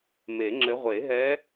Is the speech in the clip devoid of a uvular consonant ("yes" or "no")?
no